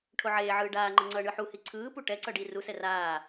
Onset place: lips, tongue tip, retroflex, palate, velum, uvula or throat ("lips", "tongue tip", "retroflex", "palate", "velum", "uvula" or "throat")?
retroflex